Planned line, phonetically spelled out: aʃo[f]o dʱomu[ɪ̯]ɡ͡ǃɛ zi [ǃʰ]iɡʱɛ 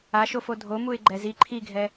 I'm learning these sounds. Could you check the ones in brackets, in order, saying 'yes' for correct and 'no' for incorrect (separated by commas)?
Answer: yes, yes, yes